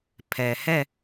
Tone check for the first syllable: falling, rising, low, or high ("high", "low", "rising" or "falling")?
low